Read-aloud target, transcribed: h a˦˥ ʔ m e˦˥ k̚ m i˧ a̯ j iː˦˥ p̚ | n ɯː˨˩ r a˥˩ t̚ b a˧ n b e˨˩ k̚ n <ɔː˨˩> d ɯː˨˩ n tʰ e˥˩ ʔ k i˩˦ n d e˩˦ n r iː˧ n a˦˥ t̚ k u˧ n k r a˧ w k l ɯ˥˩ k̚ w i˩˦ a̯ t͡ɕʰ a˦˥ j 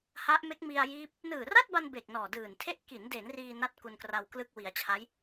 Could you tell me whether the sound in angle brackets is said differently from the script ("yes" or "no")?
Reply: no